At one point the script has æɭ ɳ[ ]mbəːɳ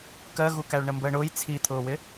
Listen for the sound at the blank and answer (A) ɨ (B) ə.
B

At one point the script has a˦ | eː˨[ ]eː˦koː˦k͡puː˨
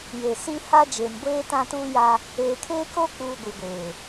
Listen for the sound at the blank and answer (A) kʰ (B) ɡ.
A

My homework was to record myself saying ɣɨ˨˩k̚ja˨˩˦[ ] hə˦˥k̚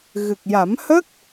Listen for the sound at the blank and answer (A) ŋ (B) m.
B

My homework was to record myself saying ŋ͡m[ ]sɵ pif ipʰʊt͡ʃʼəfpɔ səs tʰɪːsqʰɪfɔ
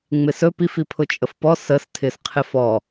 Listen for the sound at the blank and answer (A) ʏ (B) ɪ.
B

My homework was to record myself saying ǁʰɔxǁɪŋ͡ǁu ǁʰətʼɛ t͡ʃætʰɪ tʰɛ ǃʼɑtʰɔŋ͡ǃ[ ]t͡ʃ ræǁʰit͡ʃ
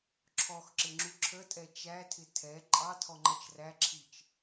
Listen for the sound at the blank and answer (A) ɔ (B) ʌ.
B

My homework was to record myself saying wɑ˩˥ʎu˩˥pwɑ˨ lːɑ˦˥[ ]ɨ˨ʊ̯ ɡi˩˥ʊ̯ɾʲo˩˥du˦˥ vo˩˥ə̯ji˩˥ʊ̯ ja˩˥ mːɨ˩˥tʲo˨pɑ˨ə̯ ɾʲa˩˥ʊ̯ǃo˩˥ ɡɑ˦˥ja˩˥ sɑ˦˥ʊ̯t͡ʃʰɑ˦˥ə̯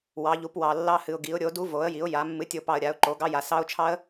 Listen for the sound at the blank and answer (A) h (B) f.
A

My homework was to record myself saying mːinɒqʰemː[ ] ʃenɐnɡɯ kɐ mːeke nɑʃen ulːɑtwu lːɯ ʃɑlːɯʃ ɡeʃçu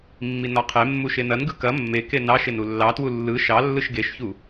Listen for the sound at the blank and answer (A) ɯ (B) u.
B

